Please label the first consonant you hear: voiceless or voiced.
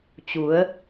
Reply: voiceless